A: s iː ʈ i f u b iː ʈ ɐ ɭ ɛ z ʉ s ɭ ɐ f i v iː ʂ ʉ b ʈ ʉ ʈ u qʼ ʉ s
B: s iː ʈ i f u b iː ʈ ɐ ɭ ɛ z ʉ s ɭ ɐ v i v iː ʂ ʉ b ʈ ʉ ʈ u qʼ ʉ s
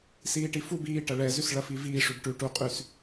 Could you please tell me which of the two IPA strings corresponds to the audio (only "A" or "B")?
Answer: A